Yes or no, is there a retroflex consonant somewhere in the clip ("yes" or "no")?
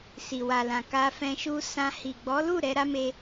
no